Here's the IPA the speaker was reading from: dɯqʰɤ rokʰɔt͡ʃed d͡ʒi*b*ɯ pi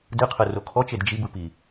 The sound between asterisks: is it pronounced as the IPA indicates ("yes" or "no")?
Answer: yes